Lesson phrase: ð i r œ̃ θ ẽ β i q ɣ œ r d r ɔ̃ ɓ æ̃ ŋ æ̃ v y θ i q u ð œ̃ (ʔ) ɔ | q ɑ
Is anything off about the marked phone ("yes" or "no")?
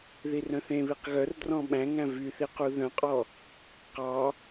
yes